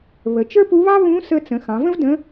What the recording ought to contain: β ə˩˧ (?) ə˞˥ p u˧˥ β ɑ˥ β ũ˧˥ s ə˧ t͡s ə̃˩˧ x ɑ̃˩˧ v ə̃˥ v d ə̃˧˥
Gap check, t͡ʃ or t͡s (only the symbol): t͡ʃ